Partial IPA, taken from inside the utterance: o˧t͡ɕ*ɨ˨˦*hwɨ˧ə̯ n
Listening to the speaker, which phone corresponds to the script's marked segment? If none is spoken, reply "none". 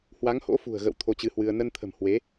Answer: ɨ˨˦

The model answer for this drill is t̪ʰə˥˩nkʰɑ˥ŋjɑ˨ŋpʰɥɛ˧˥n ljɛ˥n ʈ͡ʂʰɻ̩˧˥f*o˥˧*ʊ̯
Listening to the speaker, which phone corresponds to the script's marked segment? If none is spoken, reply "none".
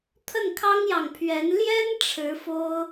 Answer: o˥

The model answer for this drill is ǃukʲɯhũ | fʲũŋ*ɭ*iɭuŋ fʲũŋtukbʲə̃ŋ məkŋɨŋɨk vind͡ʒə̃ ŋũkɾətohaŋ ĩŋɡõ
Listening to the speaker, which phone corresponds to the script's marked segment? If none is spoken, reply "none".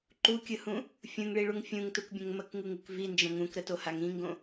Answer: ɭ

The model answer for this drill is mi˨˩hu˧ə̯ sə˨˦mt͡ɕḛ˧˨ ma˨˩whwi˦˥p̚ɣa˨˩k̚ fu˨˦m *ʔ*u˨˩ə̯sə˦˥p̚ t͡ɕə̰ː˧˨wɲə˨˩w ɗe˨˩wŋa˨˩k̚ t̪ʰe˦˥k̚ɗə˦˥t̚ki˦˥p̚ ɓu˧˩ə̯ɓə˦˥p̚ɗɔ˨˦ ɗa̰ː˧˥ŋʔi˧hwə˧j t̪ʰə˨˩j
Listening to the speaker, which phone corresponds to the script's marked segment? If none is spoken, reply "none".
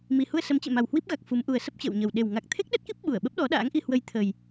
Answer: ʔ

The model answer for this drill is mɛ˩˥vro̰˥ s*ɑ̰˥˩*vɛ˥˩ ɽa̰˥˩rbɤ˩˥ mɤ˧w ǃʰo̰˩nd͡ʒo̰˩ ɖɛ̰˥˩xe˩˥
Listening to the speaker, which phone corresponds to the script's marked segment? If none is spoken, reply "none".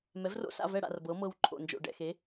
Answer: a̰˥˩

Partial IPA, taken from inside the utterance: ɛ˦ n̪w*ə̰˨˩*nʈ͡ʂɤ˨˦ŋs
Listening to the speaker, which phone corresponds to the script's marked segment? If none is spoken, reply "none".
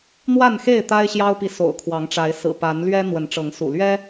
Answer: ə˨˦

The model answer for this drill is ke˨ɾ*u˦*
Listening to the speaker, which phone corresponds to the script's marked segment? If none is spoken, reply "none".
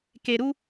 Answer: u˦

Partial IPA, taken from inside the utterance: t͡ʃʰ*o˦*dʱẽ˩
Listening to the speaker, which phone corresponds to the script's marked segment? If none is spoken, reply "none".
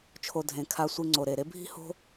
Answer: o˨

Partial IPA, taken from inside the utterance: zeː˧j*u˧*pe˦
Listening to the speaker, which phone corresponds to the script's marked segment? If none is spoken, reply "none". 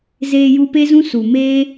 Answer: u˧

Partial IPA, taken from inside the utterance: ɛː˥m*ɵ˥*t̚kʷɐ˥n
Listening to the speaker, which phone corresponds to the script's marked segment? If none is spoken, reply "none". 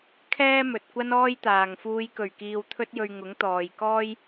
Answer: ɵ˨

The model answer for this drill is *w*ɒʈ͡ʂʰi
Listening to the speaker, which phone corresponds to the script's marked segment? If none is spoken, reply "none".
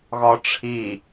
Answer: ɣ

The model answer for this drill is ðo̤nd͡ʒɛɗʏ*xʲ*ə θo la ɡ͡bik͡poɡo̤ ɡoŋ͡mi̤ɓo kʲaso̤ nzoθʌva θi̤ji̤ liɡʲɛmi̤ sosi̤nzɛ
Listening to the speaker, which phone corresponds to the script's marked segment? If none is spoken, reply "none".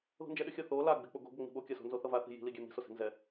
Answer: xʲ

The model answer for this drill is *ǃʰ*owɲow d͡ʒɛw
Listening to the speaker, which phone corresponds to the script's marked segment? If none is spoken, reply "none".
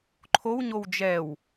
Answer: ǃʰ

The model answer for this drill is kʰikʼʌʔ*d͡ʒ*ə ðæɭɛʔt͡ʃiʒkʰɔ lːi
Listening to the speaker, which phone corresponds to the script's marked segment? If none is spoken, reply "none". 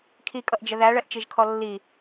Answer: d͡ʒ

